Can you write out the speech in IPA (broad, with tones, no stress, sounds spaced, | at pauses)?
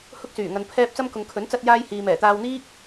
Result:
h ʊ˥ k̚ s yː˨˩ ŋ ɐ˧ n pʰ ɛː˥ p̚ t͡s ɐ˥ m k ʊ˨ ŋ kʰ ɵ˨˥ n t͡s ɐ˧ t̚ j aː˧ j h iː˨ m ɛː˨˩ t̪ aː˧ w n̪ iː˥ k̚